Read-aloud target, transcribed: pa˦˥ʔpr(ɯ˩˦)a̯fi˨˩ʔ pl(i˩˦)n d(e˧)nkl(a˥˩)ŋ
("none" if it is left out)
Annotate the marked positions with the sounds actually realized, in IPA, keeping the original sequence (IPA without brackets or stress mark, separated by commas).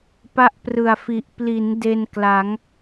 ɯ˨˩, i˩˦, e˧, a˩˦